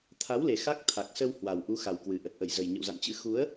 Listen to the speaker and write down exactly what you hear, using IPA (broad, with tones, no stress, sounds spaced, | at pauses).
t̪ʰ a˨˦ w l e˨˩ x a˦˥ k̚ t̪ʰ a˨˩ k̚ s ə˧ w h w a˨˩ w ʔ u˨˦ x a˨˩ w k w ɨ˨˩ ʔ ə˨˩ t̚ ʔ ə˧˩ j z ə˨˩ j ɲ ə̰˧˨ w z a̰˧˨ n t͡ɕ ɨ̰˧˥ x u˨˦ ə̯